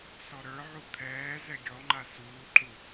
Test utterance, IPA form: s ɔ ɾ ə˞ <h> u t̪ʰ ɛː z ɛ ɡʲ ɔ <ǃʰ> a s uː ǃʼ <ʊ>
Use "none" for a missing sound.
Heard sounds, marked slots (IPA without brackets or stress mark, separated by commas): ʕ, ŋ͡ǃ, u